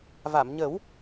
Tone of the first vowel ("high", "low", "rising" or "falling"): low